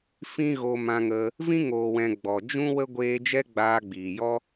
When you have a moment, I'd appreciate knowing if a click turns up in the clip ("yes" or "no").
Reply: no